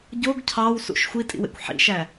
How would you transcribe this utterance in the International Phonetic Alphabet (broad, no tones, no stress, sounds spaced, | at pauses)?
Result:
ɟ o ɡ cʰ ɑ w s ṵ ʃ xʷ i tʼ ḭ w ḛ kʷ ħ ḭ ʃ æ